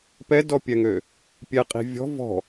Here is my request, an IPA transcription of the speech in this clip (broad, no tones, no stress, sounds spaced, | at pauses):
p ɛ d ɔ pʲ ɛ ŋ ø | pʲ ɛ qʼ i̤ vʲ ɔ̤ v ɔ̤